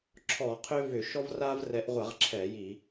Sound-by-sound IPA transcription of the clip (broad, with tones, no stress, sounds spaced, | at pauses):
ǁʰ ɔ˧˩˧ qʰ ʏ˦ v ʏ˧˩˧ ʃ ɔ˦ v r a˦ v r ɛ˨˦ ʔ ʁʷ a˧˩˧ ʁ ǁʰ ɛ˧˩˧ j i˧˩˧